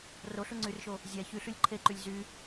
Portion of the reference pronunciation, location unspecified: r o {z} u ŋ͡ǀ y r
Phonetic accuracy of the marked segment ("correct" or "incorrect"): incorrect